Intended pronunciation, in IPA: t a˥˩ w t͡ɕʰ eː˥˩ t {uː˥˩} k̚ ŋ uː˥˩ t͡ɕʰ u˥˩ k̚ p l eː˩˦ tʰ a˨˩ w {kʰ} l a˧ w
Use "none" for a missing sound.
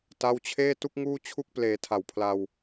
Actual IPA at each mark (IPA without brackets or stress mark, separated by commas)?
u˥˩, pʰ